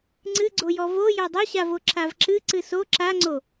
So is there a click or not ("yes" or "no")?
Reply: yes